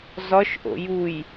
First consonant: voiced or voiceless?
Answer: voiced